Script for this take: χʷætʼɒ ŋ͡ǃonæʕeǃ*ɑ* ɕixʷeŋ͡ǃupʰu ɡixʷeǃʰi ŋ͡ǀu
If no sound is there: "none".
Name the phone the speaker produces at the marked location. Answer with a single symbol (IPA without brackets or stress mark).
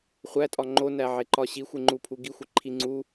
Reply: ɒ